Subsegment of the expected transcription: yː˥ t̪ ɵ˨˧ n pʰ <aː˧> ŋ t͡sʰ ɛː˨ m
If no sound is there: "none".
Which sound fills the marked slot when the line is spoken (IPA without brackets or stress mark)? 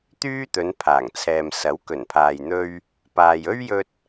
aː˨˩